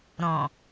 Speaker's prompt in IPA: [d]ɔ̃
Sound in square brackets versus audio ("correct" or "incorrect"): incorrect